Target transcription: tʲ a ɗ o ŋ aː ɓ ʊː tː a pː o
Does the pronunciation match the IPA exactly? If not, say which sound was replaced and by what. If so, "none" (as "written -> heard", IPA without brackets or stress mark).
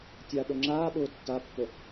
ŋ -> ŋ͡ǁ